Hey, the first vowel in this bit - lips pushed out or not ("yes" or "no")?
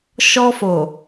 yes